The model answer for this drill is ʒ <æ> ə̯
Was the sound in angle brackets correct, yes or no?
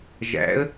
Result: no